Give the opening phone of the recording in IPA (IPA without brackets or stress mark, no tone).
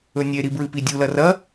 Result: ɵ